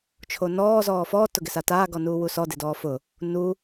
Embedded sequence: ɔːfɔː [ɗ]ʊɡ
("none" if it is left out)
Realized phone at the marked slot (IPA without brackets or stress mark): t